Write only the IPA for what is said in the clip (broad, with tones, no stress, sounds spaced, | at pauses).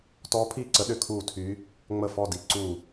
t ɔː˧˥ pʰ iː˦˨ ǀ ə˧˥ ɗ ʏ˧˥ kʰ uː˦˨ tʰ y˧˥ | ŋ͡m ə˦˨ f ɔ˦˨ d i˧˥ ǀ u˦˨